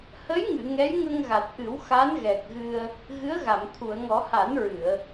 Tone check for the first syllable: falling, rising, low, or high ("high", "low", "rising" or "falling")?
rising